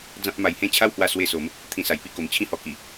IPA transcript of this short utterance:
d͡z ã˦ p̚ m a˧ j h ẽ˥˧ t͡ɕʰ a˦ w h w a˧ s w e˧ s o˨˦ m | t̪ʰ ĩ˧ s a˨˩ j p i˥˧ k o˨˩ m t͡ɕʰ ĩ˥˧ h ɔ˧ k i˨˩

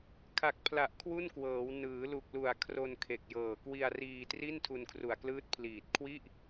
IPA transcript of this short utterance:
kʰ a˨˩ k̚ pʰ l a˨˩ ʔ kʰ w u˥˩ n k w ɤː˩˦ w n ɯː˩˦ l u˨˩ k̚ l u˨˩ a̯ kʰ r o˧ n kʰ e˨˩ k̚ j ɤː˨˩ k w i˧ a̯ r iː˧ t r i˥˩ n tʰ u˧ n kʰ r u˨˩ a̯ k l ɯː˦˥ t̚ pʰ l iː˨˩ t̚ kʰ w i˥˩ ʔ

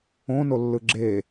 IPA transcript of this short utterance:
õ n o lː ɯ ɡ͡ǁ e

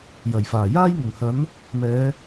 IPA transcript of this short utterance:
j ɐ˨˩ j f aː˨˩ j aː˥ j ŋ ʊ˨˩ ŋ h ɐ˨˥ n | m ɛː˨˧

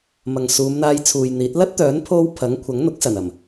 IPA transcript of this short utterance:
m ɐ˨ ŋ s uː˨˧ m n̪ aː˧ j t͡sʰ uː˨ j n̪ iː˨˥ t̚ l ɐ˥ t̚ t̪ œː˨˥ n pʰ o˧ w pʰ ɐ˨˥ ŋ kʷʰ ɐ˨˥ ŋ n̪ ʊ˨˥ k̚ s ɐ˨˩ n ɐ˨˩ m

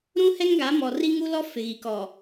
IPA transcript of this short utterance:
ɾ ũ˦ h ɛ˦ ŋ ɡ a˨˦ m ɔ˨ r i˦ ŋ u˦ l ɔ˦ f ɪ˨ ɣ i˨ k ɔ˨

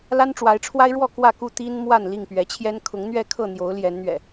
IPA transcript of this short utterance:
l a˦ n ʈ͡ʂ w a˨˦ ɪ̯ ʈ͡ʂʰ w a˦ ɪ̯ ɻ w ɔ˥˨ k w ä˥˨ k u˥˨ t̪ i˦ n m w a˥˨ n l i˥˨ ŋ p ɥ ɛ˨˦ t͡ɕʰ j ɛ˦ n kʰ ʊ˨˦ ŋ n̪ ɥ ɛ˥˨ kʰ ɤ˥˨ n̪ j o˨˦ ʊ̯ l j ɛ˨˦ n n̪ ɥ ɛ̰˨˩

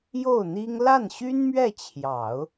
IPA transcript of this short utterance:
j o˥˩ ʊ̯ n̪ i˥ ŋ l a˥˩ n ɕ y˥ n m ɥ ɛ˥˩ t͡ɕʰ j ɑ˨˩˦ ʊ̯

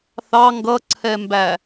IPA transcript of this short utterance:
θ ɑ ŋ ɡ ʌ ǀʰ ɛ m b æ

